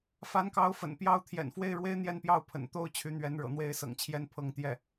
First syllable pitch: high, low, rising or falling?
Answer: rising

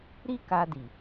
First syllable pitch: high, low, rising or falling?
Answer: high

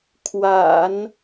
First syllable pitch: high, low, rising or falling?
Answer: low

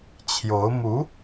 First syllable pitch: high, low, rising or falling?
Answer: rising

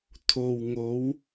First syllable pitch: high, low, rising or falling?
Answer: low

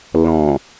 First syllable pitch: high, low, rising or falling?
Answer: low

